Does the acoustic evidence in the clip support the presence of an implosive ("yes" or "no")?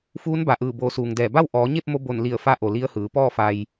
no